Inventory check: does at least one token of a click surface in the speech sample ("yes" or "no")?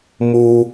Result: no